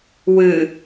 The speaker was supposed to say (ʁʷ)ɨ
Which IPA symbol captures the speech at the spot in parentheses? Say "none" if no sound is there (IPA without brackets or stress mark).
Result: w